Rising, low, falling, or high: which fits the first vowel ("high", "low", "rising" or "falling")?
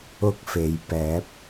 high